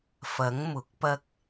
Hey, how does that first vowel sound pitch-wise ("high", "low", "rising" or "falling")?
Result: rising